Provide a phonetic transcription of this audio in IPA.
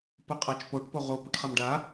p ʊ qʼ a t͡ʃ p o ʈ p o ʁ o p ʊ ʈ χ a m ɖ a

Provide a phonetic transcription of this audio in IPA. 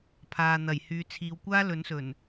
pʰ aː˨ n̪ ɐ˨˩ j h yː˨˧ t͡sʰ iː˨˧ w kʷ aː˥ l ɵ˨˥ n s ɵ˨˩ n

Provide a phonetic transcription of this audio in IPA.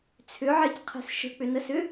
t͡sʰ ʏ ʕ e c qʰ e̤ s ʃ ə̤ k͡p ʏ n ə s ʏ

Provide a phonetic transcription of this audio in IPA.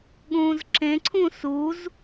ɠ ũː z ǁ ẽ ǀʰ ũ s u z

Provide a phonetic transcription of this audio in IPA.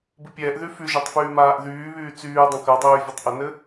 b ɨ pʲ ɛː ʔ ð y f y ʒ ɜ tˤ f yː m aː ʔ ð yː β yː t͡s yː dˤ ə̃ k ɜ dˤ yː vʲ ɨ tˤ ʔ ə n ɘ

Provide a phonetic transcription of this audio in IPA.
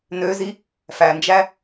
n ø z i | f æ n d͡ʒ æ

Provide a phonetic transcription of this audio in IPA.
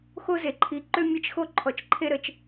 x o˦ z e˧ ǃʰ i˧ ǃ ø˦ mʲ ɐ˦ t͡ʃ x o˦ ǃʰ ɔ˧ t͡ʃ ǃʰ e˦ ɾ ə˧ t͡ʃ

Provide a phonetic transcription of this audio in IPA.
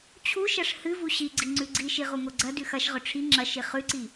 t͡ɕʰ u ʃ ɐ ʂ h ɨ v u ɕ i ɡ͡ǀ i ŋ͡ǀ ʉ ɡ͡ǀ i ʃ i ʁ u ŋ o ɡ͡ǀ ɐ d ʉ x ɐ ʃ ʁ ɵ ʈ͡ʂʰ i ŋ͡ǁ ɐ ʃ i χ ʉ ǀ i

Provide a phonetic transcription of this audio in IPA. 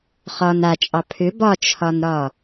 χ ɒ n a t͡ʃʼ ɑ pʰ ʏ b ɒ t͡ʃʰ ɒ n ɾ ɒ

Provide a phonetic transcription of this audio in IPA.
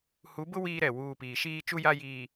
h u˨˦ b ʊ˦ w iː˦ ɾ ɛ˨ w uː˦˨ p iː˨ ʃ iː˦ t͡ʃ u˦ j a˦ j iː˨

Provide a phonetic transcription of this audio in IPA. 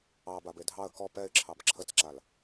ɑ b a b e dʱ ɑ ə̯ k ɔ p ɛ ɪ̯ ǁʰ ɑ b ǁʰ ə t͡s ǁ a l

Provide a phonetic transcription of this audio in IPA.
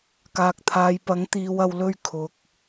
k aː˨ k̚ t̪ʰ aː˨ j p ɐ˨˥ ŋ t̪ iː˨ w ɐ˨ w l ɵ˧ ɥ kʰ ʊ˨ k̚

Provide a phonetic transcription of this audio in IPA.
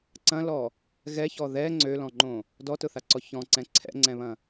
ǀ ɐ̃ l ɔ | ɣ ɛ ç ɔ ð ɛ ŋ͡ǀ ø l ɔ̃ ŋ͡ǃ õ | d ɔ t ʊ θ a ǀ ɔ ç ɔ̃ ǀ ɛ̃ ǀʰ ɛ̰ ŋ͡ǀ ɛ̃ β ɐ̃

